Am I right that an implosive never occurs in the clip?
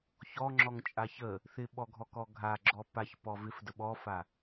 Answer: no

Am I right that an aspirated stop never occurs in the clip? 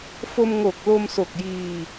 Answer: yes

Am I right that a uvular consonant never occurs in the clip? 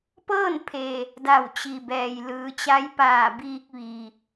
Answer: yes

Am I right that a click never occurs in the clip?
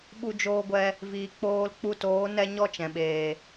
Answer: yes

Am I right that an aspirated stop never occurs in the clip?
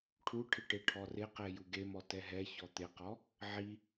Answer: no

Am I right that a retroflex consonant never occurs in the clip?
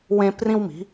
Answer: yes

